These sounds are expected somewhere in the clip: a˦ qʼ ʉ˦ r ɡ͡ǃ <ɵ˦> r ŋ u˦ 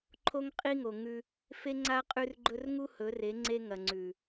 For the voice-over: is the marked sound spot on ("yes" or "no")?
yes